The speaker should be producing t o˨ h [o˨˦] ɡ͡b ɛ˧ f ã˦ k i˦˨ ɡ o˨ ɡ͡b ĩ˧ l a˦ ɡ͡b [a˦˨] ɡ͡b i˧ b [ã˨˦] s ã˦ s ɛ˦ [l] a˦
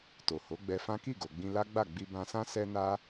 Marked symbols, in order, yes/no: yes, yes, no, no

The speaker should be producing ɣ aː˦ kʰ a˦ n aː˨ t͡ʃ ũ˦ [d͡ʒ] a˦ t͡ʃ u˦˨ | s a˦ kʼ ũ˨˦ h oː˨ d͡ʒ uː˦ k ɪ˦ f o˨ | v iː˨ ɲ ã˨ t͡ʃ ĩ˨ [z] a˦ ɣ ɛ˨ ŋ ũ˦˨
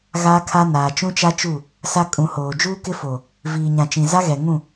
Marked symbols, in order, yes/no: no, yes

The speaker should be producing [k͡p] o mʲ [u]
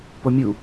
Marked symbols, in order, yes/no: no, yes

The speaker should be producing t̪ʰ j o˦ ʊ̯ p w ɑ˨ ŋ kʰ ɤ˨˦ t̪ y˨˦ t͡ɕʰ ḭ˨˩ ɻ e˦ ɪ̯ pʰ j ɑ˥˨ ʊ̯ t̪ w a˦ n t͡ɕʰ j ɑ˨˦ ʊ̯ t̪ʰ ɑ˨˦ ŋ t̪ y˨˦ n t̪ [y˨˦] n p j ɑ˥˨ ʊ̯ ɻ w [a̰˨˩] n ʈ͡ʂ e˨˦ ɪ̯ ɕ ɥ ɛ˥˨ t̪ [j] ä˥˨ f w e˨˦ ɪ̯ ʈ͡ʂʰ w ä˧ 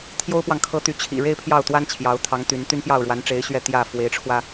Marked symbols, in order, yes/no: no, no, yes

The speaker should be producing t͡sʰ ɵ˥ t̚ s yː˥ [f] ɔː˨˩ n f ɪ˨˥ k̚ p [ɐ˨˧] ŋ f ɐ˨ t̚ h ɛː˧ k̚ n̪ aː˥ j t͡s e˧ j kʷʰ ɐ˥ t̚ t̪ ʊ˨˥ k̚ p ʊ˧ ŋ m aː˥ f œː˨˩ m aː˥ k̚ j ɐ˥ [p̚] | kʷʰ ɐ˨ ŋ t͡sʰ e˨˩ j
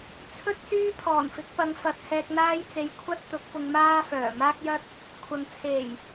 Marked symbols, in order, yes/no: no, yes, no

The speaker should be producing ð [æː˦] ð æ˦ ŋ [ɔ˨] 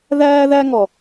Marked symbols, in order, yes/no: yes, yes

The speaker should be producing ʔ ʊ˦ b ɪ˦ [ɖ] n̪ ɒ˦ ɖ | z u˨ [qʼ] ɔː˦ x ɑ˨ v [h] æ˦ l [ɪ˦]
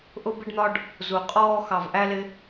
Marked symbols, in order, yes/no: yes, yes, no, yes

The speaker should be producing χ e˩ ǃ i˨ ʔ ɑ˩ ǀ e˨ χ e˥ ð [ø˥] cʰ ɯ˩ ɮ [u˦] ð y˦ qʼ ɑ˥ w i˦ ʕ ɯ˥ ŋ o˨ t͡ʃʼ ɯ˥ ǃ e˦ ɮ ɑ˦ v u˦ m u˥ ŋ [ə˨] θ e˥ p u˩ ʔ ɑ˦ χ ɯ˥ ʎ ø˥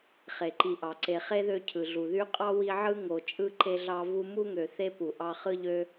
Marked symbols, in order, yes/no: no, no, no

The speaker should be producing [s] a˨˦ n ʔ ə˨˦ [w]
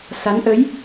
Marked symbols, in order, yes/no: yes, no

